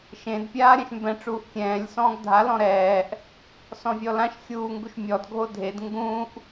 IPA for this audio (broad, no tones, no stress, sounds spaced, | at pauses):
ʃ ẽ d pʲ aː ɾʲ ã ʃ m b ɛ̃ ʈ͡ʂ uː ʔ kʲ ɛ̃ː lʲ s ɔ̃ː ɡ dʱ a l ɔ̃ ɾ ɛː ʔ | s ɔ̃ vʲ ɔ l ã ʃ xʲ uː ŋ ɡ u ʃ mʲ ɔ d ɡʱ o dʱ e d ŋ ɡ ũ ʔ